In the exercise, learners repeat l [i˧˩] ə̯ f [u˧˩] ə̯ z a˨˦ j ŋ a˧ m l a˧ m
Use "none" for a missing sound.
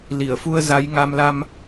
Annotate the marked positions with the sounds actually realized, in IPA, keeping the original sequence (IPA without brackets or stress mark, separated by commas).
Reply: i˧˩, u˧